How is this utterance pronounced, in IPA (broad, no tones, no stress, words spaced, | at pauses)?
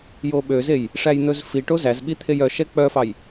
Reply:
joɓøzej | ʂæjn̪ɵzfiʈo zæzɓi t̪ʰejœʃɛ k͡pœfɑj